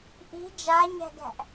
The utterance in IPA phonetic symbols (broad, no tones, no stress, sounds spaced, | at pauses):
ʔ i̤ d͡ʒ a ɲ æ̤ ɡ æ̤ ʔ